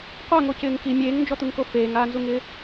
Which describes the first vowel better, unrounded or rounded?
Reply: unrounded